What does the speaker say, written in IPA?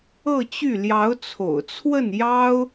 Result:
ɤ˥˧t͡ɕy˥˩ ljɑ˧˥ʊ̯t͡sʰo̰˨˩ʊ̯t͡sʰwə˥˩n jɑ˥ʊ̯

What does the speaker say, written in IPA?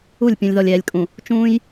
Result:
u˦˨lʲpʲũ˨lʲ ðɔ˨lʲɛː˨lʲkʼũ˨ | t͡ʃũː˦j

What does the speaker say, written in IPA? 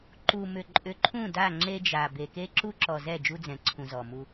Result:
ǃu˨mʏ˨ ǃʼʏ˨ǃʰũ˦˨da˦˨ ŋ͡ǁe˦d͡ʒa˨ be˨ke˦ ǁu˦ǁɔ˨zɛ˦˨ d͡ʒu˦d͡zɛ̃˨ǀʰũ˨ zɔ˨mu˦

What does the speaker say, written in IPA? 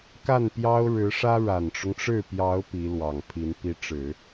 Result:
ka˥˩npjɑ˥ʊ̯ɻɻ̩˧˥ʂä˥ ɻa˨˩nʈ͡ʂʊ˦ŋʈ͡ʂɻ̩˥˩ pjɑ˧˥ʊ̯ pi˧˥lwɑ˨˩ŋpʰi˧˥n pi˧˥ʈ͡ʂɻ̩˨˩˦

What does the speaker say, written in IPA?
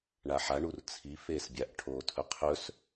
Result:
ɳaħaɳur t͡sʰi feːsbʲaʔʈʰoːtʰɵ qʰɵs

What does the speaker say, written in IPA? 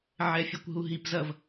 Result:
ʕɛfʲɛkʷɦuɦip zɐv

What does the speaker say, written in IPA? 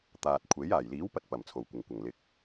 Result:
t̪aː˨t̚kʷʰe˨˥j aː˨˩jliː˨˥wpɐ˧t̚ pɐ˨˩mt͡sʰo˨˩wkʷɪ˨˩ŋkʷɐ˨˩ŋ lɪ˨k̚

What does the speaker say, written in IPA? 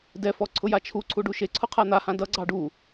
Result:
dɛfɔ ǀʰʊjat͡ʃʰuǀʰu ɖuʃeǀʰʊ qʰan̪ahã dʌɡ͡ǀɑ ɖu

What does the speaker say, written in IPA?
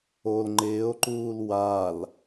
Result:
ol ŋ͡ǃɪːo̯ǃuːl wal

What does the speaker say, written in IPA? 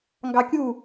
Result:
ŋɡɑkʲu

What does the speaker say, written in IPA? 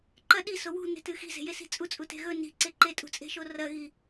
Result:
ǃɐ ɗiso wṳne̤tɨ xi̤ze̤jesi̤ t͡sʼut͡sʼute̤ ɣɵ ni̤ǀe ǃetʼṳt͡sʼe̤ʃo rɐɣi

